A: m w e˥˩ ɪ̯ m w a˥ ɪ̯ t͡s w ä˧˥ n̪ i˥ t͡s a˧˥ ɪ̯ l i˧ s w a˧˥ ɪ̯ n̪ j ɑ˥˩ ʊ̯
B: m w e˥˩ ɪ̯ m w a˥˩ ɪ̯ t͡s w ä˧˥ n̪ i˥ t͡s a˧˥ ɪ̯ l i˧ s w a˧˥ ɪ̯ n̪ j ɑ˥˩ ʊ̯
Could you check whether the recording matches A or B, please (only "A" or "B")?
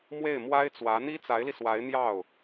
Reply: A